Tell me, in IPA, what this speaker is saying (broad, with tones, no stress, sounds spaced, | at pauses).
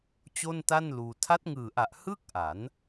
t͡ɕ o˥˩ n t a˥˩ n l uː˧ tʰ a˦˥ t̚ ŋ ɯː˨˩ ʔ a˨˩ ʔ h ɯ˥˩ k̚ ʔ a˩˦ n